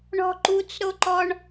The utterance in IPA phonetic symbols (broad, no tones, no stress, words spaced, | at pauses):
ɳɔ̤ǃut͡sɾoǃɔɳ